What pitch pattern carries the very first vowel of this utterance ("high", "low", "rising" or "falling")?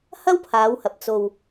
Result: high